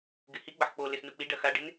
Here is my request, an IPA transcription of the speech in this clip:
ɡ ɪ h i ɡ͡b ɐ ħ k͡p o l ɪ s n u k͡p i ɖ ɐ x a ɖ ɪ n

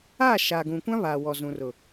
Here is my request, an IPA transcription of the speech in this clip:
aː˦˨ ʃ aː˨ ɡ ũ˨ kʷ ã˦ β aː˨ w ɔ˨ z ũ˨ r ʊ˨

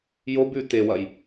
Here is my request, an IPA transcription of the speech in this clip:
j o b ʉ t e w ɐ j

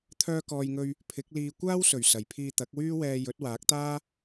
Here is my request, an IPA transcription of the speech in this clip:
t̪ʰ œː˧ k ɔː˨ j ŋ ɵ˧ ɥ | pʰ ɪ˨˥ k̚ l iː˧ kʷ aː˥ w s ɵ˨˩ ɥ s ɐ˨˩ j pʰ iː˧ t̪ ɐ˨˥ k̚ w yː˥ w ɛː˧ j ɵ˨˥ t̚ w aː˨˥ k̚ t̪ aː˥

